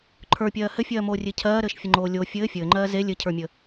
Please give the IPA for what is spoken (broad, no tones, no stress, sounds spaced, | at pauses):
ǃʰ ə˞ pʲ ɜː h ɘ fʲ ɜː m oː rʲ e cʰ ɜː ɾ ɘː ʃ fʲ ə ŋ͡ǃ oː lʲ o fʲ ɘː fʲ ɘː ŋ͡ǃ ɜː z e lʲ ɘ cʰ ə˞ mʲ ə